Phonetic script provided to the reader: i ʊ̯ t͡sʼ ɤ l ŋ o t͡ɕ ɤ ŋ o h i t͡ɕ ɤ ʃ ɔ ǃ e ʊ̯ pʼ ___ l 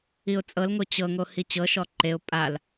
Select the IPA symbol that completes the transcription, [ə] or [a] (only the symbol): a